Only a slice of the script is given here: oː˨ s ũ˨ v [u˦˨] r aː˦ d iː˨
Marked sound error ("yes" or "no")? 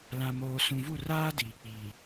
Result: no